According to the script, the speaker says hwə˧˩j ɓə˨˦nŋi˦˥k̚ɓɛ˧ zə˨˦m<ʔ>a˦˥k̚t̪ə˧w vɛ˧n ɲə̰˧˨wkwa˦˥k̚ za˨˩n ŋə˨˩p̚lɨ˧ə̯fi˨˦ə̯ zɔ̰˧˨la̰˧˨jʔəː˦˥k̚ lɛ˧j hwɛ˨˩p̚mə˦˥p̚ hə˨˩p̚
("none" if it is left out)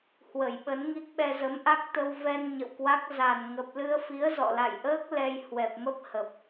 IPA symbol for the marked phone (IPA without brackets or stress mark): ʔ